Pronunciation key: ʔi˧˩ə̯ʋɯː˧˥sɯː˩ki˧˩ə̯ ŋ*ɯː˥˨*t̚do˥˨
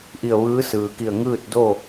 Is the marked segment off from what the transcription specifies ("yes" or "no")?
no